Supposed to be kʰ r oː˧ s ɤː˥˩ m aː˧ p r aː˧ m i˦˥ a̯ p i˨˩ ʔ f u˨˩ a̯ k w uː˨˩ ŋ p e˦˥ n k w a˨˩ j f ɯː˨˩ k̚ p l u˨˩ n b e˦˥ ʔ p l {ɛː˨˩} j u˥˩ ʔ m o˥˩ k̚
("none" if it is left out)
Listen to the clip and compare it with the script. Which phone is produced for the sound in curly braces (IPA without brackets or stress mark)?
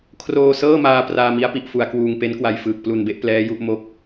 ɛː˦˥